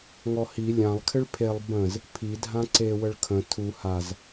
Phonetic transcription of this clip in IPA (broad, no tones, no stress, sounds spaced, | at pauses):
ŋ ɔ h i lʲ ã lˠ kʰ ɪ ɭ pʰ e lˠ b ə̃ z | pʰ i dʱ ã ǀ e w ə ɭ kʰ ə̃ tʰ u h a z